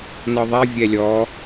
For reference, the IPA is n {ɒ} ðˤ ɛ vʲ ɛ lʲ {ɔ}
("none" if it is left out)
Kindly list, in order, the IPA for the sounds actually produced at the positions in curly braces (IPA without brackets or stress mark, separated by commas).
ɒ, ɔ